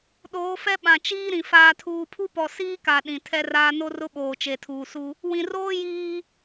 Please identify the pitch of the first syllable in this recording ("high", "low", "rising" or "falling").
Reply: rising